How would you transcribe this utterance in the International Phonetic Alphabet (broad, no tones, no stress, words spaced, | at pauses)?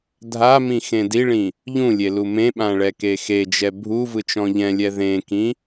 dʱamĩ xẽdiɭĩ | ʎũlʲe lumẽɓã ɭɛkexed͡ʒɛ bʱu vɯt͡ʃɔ̃ʎɛ̃lʲɛ ðẽkĩ